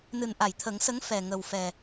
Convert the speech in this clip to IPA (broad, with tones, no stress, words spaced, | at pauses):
nɨ˨˩nʔa˨˩˨jt̪ʰə˨˩˦ŋsə˧˥ŋ fɛ˨˩ ŋə˨˩wfɛ˨˩